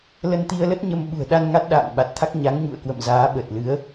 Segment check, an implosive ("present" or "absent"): present